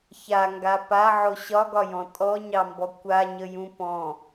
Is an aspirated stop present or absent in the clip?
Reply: absent